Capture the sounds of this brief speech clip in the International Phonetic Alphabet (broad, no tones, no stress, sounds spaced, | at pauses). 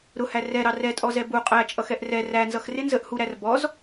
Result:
ɾ ʊ h æ r ɛ ɾ ɑ r ɛ tʼ ɔ z ɛ b u qʼ æ t͡ʃʼ ʌ x ɛ ʔ r ɛ r æ n z ʌ x r ɪ n z ə ʔ h u ɾ æ r b ɔ z